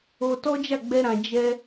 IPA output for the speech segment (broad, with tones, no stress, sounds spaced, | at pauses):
o˧ t ɔ˦ d͡ʒ a˦˨ ɡ͡b ɛ˧ ɾ ã˨ d͡ʒ ɛ˧